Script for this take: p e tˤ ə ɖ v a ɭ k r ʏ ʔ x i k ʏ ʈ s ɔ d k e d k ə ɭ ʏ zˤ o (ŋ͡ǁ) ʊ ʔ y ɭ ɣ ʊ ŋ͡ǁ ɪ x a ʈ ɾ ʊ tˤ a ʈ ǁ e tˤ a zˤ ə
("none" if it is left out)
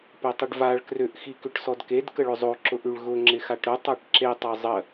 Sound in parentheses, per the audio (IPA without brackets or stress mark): ǁ